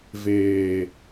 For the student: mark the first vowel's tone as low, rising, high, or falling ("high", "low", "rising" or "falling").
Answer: low